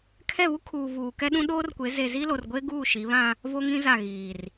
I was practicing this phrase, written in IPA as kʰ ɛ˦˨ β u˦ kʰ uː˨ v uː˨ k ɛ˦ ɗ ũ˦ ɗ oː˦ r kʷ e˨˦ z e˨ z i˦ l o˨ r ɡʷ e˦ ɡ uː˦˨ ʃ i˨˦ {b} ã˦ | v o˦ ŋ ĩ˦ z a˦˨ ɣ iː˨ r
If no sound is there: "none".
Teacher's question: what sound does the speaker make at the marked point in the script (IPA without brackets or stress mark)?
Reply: β